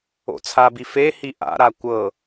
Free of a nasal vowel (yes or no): yes